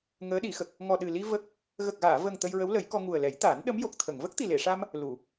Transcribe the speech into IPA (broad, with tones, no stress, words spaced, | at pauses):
ŋəː˧˥ɗi˨˩˦xə˨˩k̚ | ŋɔ˨˩ɗɨ˨˩li˧ və˦˥k̚ | ɣə˨˩k̚ɣaː˨˩˨ və˨˩ŋ t̪ə˧jɹə˧˥wlə˨˩˦jkɔ˧ ŋu˨˩ə̯lɛ˨˩˦jt̪aː˨˩˦n ɗə˧˥mjo˨˩k̚t̪ʰə˨˩˨ŋ və˦˥k̚t̪i˨˩le˨˩˨ʂa˧m | lu˨˩˨